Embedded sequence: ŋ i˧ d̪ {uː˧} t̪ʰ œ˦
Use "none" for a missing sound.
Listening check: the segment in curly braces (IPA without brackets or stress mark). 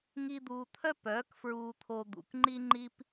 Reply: uː˧